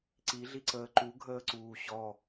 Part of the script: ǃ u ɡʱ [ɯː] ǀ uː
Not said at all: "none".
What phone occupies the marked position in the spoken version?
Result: əː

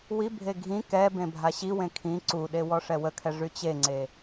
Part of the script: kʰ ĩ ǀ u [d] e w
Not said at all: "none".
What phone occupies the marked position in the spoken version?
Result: ɗ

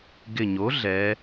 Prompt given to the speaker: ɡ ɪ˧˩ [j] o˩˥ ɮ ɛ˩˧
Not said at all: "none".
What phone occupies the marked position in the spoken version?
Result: ɲ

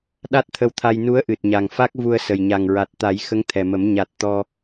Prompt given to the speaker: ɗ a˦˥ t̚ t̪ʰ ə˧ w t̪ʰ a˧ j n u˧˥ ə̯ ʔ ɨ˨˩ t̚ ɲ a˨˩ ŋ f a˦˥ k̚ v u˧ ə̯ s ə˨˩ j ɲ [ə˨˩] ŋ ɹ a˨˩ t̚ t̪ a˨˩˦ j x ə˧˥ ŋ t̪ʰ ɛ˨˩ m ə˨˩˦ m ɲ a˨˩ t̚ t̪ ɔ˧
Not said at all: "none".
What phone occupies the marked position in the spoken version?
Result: a˨˩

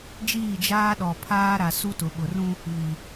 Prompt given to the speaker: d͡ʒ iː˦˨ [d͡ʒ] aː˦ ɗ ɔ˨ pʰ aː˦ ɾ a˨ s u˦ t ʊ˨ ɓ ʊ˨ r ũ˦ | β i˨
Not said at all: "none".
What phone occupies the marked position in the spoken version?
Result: d͡ʒ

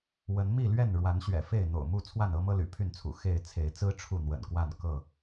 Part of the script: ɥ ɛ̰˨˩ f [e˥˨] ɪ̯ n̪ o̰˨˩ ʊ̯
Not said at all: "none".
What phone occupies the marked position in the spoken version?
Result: e˥˨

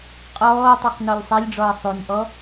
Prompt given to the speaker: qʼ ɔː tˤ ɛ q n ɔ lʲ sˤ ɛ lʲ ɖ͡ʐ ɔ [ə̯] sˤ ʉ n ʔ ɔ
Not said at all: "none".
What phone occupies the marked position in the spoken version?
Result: ə̯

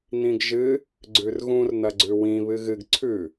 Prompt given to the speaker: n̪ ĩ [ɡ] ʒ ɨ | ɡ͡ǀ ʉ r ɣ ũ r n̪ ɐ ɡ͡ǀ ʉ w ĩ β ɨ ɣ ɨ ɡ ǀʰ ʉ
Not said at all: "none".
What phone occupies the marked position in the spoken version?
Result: ɡ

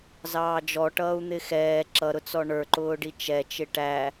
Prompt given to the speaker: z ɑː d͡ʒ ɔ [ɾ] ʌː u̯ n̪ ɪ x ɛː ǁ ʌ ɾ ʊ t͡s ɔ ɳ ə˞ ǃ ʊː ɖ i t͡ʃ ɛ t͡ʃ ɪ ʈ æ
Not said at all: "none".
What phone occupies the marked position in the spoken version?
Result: ʈ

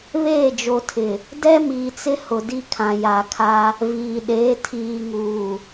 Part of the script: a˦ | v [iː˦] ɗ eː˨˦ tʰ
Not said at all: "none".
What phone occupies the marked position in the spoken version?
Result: iː˨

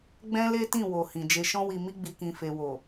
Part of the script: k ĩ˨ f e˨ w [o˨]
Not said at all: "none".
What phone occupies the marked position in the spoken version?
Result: o˨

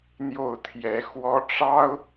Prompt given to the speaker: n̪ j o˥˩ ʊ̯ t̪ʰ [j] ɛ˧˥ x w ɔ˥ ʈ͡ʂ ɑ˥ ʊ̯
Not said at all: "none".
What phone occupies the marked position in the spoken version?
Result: j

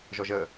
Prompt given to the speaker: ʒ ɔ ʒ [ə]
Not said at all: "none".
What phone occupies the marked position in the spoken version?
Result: ə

